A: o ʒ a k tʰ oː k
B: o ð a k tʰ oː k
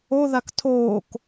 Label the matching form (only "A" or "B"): B